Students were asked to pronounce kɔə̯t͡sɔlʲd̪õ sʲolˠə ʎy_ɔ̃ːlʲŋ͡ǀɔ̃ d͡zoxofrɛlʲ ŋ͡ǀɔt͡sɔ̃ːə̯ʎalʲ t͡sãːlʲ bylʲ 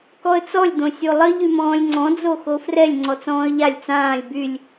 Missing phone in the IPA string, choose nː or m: m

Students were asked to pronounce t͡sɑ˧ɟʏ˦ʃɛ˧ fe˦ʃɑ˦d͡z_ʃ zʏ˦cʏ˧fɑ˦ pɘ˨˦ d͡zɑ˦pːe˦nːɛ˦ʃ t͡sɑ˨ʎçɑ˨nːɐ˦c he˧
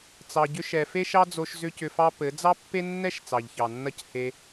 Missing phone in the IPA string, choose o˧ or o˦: o˧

